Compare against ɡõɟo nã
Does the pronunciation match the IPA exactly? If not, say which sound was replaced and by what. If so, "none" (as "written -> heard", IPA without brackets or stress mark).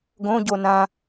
none